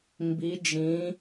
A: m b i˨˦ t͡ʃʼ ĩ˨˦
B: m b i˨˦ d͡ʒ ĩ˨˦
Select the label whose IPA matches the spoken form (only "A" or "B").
B